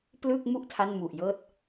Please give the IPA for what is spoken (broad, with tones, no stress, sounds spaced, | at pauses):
p l ɯ˥˩ k̚ m u˥˩ ʔ tʰ a˥˩ n m u˨˩ ʔ j ɤː˥˩ t̚